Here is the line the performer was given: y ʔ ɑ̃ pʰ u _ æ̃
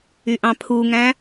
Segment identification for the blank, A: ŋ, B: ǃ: A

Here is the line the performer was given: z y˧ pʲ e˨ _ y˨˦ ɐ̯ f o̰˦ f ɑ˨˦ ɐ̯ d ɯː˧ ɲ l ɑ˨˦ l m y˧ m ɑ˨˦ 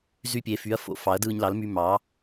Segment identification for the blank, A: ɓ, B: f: B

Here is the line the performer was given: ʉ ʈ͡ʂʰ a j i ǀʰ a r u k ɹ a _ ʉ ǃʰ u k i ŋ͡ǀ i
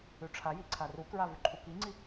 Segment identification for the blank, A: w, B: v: B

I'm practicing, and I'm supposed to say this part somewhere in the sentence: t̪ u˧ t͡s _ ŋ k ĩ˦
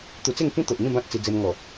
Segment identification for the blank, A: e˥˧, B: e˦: A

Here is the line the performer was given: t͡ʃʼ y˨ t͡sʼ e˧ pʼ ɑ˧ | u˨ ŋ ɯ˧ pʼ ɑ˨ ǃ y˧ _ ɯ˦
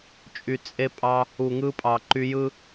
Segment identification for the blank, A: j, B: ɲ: A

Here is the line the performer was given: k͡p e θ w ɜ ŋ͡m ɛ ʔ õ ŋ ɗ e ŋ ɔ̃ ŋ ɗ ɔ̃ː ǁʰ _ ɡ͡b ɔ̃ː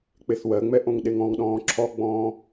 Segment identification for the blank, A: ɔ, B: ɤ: A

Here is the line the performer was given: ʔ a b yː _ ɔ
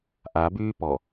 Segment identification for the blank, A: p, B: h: A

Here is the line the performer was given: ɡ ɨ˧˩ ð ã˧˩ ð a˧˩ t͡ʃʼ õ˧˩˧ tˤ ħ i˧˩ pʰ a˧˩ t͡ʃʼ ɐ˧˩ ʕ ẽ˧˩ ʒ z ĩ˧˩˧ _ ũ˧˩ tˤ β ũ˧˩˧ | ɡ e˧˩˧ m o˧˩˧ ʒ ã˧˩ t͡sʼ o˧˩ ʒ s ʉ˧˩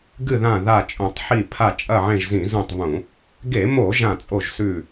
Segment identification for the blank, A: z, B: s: A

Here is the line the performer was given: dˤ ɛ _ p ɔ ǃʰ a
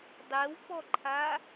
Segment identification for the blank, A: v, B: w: B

